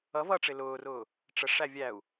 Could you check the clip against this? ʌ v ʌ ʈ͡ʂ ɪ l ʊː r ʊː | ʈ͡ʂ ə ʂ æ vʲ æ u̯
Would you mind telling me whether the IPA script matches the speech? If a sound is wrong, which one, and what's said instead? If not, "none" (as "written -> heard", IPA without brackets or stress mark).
none